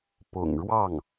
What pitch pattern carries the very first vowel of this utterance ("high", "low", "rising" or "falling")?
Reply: low